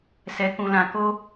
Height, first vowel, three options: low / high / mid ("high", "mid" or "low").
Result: mid